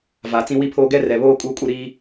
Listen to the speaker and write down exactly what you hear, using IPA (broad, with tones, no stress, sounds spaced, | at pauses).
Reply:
v a˨ t͡s ĩ˦ w i˦ pʰ oː˦ ɡ ɛ˦ r ɛ˨ β oː˦ kʼ uː˦ kʼ u˦ ɾ iː˦